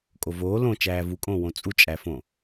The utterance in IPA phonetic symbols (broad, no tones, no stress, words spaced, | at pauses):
kʼovoː lõ t͡ʃæːvukʼõːwõ t͡sʼut͡ʃʼæfõ